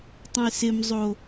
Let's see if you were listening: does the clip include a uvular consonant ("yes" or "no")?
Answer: no